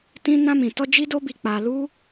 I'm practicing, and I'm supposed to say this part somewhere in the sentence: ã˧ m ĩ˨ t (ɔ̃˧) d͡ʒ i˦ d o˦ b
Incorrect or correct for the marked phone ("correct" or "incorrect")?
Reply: incorrect